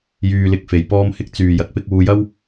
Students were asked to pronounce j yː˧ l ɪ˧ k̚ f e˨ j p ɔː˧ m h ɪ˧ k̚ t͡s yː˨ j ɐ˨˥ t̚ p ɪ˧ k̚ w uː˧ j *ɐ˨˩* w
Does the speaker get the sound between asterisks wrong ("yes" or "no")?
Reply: yes